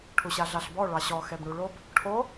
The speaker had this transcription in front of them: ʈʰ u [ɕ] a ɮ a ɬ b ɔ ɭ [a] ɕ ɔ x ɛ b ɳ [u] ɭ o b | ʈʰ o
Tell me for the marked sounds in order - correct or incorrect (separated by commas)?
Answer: correct, incorrect, correct